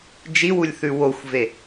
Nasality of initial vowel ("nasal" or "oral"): oral